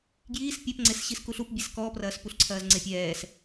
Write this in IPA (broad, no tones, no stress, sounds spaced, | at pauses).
ɡ j iː s pʲ ɛ p ŋ͡ǀ e s ɕ i s k u ɬ u p bʲ e s k ɔː p r ɐː s p u ɬ ǀʰ ɐː z ŋ͡ǀ e pʲ ɛː s